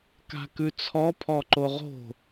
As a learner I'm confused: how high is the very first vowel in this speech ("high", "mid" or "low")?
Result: low